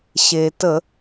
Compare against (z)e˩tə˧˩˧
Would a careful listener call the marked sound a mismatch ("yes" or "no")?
yes